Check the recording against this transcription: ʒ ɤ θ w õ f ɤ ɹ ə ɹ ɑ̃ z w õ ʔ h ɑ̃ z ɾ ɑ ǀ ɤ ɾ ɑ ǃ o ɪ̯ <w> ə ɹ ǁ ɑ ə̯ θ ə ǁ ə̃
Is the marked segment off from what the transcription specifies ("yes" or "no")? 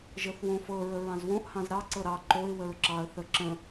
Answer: no